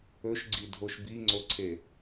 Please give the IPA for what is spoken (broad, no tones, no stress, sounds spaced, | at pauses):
ɵ ʃ ɡ͡ǀ i dʱ o ʃ b i ŋ͡ǀ o ǀʰ e